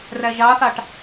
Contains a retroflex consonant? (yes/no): yes